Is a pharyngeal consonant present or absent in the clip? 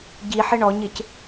present